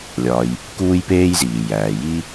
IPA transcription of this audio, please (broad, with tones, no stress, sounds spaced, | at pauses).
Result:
lʲ ɒː˨ j | k uː˦ j p eː˦ j z iː˩ j æː˩ j iː˦